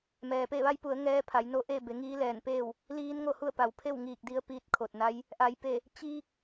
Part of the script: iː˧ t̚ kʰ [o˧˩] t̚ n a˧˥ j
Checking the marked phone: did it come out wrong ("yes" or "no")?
no